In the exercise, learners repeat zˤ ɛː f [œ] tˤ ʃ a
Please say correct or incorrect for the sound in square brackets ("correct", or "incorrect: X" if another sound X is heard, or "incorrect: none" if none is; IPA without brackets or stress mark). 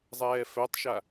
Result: correct